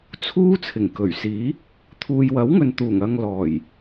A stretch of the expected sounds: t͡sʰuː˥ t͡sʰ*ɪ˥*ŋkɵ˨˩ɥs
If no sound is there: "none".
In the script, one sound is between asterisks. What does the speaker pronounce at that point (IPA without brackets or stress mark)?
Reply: ɪ˨˩